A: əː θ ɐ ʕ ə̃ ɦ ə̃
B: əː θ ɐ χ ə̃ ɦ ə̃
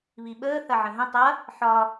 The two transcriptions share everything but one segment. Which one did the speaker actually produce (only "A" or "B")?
A